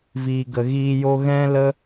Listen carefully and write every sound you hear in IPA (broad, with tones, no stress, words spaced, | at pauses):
viː˨ɡə˨ɣiː˧ jo˧ɣɛ̃˦lə˦